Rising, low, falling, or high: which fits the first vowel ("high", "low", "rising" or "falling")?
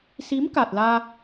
rising